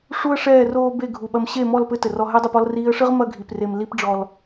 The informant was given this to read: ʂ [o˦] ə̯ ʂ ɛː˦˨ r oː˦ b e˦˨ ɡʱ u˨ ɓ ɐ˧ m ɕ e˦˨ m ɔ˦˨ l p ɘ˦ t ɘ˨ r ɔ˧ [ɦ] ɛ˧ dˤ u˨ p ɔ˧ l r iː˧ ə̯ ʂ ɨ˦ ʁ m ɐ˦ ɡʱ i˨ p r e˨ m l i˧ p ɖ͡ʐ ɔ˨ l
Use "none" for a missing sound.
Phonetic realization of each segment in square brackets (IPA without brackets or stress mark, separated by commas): u˦, ɦ